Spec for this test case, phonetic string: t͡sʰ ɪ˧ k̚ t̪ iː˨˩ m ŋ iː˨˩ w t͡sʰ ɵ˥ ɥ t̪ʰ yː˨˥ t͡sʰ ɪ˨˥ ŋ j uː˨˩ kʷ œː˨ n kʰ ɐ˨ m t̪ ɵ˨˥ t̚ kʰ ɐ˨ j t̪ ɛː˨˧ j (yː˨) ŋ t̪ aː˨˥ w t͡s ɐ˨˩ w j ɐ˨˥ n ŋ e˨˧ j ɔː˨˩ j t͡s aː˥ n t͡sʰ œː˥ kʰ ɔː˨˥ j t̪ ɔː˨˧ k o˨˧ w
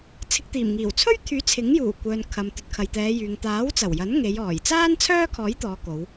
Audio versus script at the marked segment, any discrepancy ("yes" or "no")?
no